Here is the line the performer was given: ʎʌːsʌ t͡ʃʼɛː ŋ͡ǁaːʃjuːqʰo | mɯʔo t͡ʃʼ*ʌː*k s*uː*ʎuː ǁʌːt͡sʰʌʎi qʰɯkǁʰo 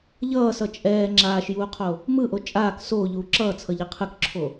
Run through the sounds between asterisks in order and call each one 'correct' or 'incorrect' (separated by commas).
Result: incorrect, incorrect